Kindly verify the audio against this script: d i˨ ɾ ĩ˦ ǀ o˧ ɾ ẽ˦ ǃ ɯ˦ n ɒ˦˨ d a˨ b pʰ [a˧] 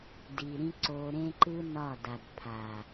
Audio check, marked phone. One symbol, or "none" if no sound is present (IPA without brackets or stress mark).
a˨